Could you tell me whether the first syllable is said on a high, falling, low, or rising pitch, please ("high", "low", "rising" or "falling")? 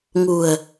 low